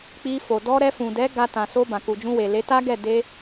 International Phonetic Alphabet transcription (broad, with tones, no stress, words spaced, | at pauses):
k͡pi˧fo˨ dɔ˧ ɾɛ˧fũ˨ dɛ˨˦ɡa˧ tã˨so˧ bã˨ku˨d͡ʒũ˧we˨ le˨˦ta˦ɡɛ˦˨ de˧